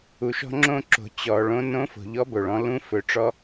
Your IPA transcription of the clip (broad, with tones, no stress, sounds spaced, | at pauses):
u˩ ʃ ɔ̤˧ ŋ͡ǁ õ˧ ǁ o̤˩ t͡ɕ ɔ˩ ɭ õ˧˥ n õ˧˥ f o̤˩ ʎ ɔ˧˥ b o˩ ɭ ɔ̃˧ l ũ˧˥ f ɵ˩ ʈ͡ʂ ɔ˧